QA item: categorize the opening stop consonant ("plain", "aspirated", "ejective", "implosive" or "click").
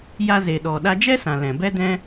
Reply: implosive